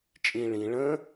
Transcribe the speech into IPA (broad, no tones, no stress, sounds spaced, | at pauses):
t͡ʃʼ ĩ ɭ ĩ ɭ ə̃